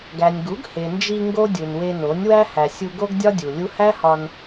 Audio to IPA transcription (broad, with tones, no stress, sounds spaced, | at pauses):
ɡ æ˨ nʲ ɡ u˨˦ ɡ h e˨ n d͡ʒ i˧ ŋ ɡ o˦ dʲ u˨ n w e˧ n o˨˦ nʲ w æ˦ h æ˨ sʲ u˧ ɡ o˦ ɡ dʲ ɒ˦ dʲ u˨ lʲ u˦ h æ˦ h ɒ˧ n